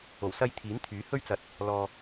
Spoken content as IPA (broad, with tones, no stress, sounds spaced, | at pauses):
o˨˩ w s ɐ˧ j t̪ʰ iː˨˥ n t̪ʰ yː˨˥ h ɵ˥ ɥ t͡s ɐ˧ t̚ | l ɔː˧